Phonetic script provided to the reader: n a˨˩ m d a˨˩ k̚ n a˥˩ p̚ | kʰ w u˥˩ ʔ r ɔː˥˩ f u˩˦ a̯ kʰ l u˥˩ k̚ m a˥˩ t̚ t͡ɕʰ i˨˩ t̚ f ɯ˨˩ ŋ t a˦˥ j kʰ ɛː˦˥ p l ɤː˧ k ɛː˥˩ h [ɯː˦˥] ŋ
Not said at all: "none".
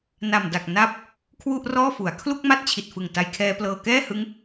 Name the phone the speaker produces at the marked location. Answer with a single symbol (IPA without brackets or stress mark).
ɯ˦˥